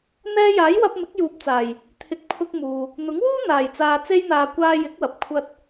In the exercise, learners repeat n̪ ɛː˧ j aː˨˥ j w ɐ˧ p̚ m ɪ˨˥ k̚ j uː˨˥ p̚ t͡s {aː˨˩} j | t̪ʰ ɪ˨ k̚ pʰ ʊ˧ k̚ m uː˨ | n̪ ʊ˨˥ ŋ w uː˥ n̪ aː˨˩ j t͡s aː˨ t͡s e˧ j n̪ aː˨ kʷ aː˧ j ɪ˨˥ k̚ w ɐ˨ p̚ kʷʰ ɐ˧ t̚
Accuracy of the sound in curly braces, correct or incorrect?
correct